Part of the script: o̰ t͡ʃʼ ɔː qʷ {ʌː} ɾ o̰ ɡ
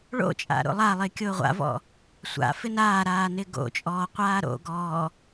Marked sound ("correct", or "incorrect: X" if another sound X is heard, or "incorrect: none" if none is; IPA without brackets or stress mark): incorrect: aː